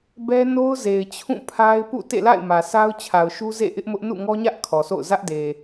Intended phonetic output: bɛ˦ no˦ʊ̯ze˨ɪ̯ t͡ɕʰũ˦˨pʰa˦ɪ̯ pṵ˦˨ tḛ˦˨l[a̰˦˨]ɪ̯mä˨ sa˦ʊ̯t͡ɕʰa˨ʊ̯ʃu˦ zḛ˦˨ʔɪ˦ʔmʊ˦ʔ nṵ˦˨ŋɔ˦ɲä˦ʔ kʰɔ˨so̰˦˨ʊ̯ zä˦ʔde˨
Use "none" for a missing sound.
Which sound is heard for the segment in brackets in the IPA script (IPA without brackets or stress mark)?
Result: a̰˦˨